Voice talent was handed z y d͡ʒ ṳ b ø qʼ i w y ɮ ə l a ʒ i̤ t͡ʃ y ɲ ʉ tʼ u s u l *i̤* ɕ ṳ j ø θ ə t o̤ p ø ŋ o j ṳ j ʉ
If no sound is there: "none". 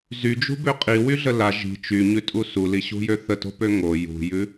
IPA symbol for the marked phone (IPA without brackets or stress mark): i